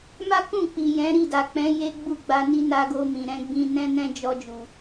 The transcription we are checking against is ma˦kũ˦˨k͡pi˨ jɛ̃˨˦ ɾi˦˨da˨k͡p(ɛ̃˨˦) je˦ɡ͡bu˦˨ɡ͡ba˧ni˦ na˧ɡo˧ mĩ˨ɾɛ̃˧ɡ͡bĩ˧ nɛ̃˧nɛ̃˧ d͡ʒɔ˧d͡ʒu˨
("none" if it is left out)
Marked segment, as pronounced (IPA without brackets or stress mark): ɛ̃˨˦